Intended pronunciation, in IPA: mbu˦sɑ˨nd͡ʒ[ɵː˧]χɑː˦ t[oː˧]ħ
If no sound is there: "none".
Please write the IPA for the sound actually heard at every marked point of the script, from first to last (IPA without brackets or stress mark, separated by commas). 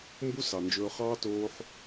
ɵː˧, oː˧